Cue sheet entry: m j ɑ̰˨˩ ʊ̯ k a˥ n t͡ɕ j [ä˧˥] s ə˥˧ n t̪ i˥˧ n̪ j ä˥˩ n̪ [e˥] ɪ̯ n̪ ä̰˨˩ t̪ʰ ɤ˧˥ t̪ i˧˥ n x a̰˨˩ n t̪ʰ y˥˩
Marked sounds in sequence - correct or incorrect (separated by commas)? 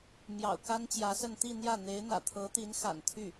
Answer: correct, incorrect